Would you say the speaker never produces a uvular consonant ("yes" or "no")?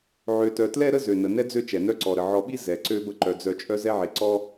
yes